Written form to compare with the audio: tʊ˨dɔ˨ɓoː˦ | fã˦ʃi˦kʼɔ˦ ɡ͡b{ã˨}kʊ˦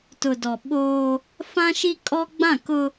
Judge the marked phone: incorrect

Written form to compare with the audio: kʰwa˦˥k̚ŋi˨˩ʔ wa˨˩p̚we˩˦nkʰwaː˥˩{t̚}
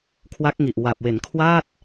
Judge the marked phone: correct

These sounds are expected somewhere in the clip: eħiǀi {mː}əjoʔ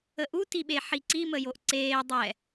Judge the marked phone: incorrect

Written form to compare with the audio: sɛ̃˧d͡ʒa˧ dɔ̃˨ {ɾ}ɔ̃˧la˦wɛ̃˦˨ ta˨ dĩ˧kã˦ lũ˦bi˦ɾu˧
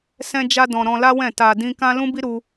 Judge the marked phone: correct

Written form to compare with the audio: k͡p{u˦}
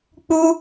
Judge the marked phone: correct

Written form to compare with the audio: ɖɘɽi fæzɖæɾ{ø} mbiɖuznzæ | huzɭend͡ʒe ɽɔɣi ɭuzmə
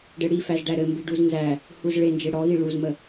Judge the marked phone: incorrect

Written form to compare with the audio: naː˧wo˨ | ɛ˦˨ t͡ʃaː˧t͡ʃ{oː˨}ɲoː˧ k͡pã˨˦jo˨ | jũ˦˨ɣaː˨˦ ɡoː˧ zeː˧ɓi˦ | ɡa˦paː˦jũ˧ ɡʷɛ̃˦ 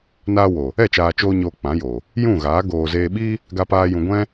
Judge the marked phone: incorrect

